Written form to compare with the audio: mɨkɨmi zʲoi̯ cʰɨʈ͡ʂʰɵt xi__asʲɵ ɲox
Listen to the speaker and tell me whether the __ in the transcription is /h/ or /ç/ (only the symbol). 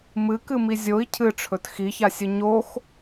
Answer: ç